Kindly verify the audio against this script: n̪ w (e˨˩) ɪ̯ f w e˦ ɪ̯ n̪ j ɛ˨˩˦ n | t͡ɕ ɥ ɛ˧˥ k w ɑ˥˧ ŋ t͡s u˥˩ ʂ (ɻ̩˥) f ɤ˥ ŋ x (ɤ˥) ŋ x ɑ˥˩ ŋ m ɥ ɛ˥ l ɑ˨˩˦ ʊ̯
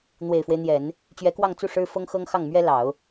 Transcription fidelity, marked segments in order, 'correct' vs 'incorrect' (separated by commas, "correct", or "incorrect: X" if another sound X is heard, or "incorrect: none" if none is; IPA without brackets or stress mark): correct, correct, correct